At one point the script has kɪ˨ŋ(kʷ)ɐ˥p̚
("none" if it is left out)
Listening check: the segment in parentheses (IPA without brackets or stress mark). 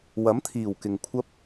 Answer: kʷʰ